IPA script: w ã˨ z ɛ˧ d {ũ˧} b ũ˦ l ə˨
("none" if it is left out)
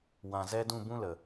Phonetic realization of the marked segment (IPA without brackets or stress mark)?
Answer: ũ˦˨